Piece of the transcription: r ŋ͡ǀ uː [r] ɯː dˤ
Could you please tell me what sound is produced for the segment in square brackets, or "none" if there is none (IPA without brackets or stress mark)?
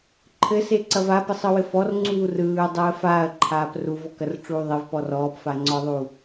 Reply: r